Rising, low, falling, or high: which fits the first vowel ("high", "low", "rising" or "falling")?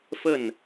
falling